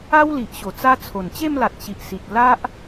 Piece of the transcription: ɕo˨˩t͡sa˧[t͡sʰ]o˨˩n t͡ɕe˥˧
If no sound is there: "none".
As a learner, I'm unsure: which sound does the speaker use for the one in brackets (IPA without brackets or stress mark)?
t͡sʰ